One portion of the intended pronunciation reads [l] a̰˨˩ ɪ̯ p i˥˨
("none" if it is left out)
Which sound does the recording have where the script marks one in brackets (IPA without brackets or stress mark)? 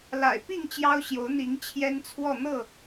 l